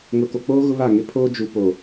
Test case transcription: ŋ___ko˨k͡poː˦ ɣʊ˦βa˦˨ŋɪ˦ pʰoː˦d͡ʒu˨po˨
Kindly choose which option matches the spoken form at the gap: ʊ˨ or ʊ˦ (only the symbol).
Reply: ʊ˨